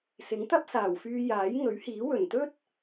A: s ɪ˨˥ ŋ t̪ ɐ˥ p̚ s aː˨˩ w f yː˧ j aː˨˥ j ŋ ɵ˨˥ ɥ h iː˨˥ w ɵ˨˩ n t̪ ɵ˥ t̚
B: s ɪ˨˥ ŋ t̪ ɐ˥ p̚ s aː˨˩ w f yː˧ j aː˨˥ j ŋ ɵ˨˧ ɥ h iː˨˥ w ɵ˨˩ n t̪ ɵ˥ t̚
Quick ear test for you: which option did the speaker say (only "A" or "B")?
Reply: A